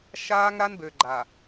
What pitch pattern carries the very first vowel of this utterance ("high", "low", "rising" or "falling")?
high